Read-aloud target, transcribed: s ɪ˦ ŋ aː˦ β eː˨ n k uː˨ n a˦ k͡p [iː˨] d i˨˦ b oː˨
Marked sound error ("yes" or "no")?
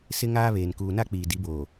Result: no